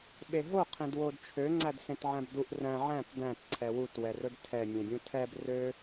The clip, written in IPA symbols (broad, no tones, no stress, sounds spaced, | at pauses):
ɓ e ɦ o qʰ ẽ d w o d t͡ʃʰ ø ŋ͡ǀ æ d s ẽ t ʕ æ̃ b d u ʔ r æ̃ ʕ æ̃ t d æ̃ t ǀʰ ɛ w u t w ɛ r ɵ d tʰ ɛ mʲ ẽ bʲ ũ tʰ ɛ b r ø